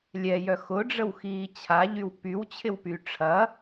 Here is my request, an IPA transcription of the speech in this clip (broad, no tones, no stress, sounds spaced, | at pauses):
lʲ ɛ j œ x ʊ ɖ͡ʐ ə w x iː t͡ɕʰ a ʎ y w p y w t͡ɕʰ ɪ w p y ʈ͡ʂʰ ɐ